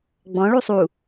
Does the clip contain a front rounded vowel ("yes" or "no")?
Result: no